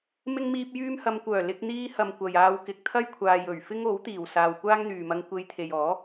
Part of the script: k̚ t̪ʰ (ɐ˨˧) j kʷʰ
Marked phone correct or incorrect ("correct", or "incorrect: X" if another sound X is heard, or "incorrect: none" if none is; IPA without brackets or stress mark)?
incorrect: ɐ˥